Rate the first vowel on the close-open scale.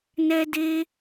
mid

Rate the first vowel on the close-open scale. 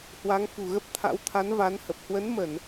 open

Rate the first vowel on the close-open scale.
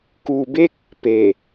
close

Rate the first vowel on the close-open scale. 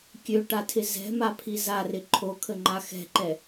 mid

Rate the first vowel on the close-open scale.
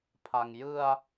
open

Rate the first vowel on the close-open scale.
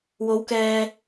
mid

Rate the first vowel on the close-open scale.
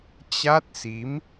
open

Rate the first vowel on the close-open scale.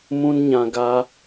close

